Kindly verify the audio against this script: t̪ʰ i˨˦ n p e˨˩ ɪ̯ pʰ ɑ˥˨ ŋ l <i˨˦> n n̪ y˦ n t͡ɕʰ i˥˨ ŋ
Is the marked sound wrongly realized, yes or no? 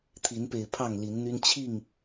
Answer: no